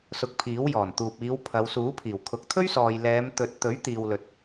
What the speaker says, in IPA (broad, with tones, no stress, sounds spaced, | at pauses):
s ʊ˨ k̚ pʰ iː˨˥ w j ɔː˨˩ n t̪ uː˨ p̚ iː˨˧ w pʰ ɐ˨˧ w s uː˨˥ pʰ iː˨˩ w kʰ ʊ˨˥ k̚ t̪ʰ ɵ˥ ɥ s ɔː˨ j l ɛː˨˧ m t̪ ɵ˨ t̚ t̪ ɵ˨˥ ɥ t̪ iː˨ w l ɵ˨ t̚